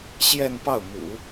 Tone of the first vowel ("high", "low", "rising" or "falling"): falling